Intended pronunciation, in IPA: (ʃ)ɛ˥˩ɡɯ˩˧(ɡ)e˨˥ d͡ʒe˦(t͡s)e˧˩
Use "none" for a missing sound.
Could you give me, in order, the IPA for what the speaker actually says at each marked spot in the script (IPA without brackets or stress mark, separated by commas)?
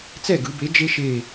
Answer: t͡s, b, ʃ